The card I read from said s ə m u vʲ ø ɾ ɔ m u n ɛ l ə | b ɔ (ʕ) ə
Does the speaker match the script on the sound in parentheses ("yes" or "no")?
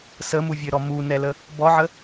yes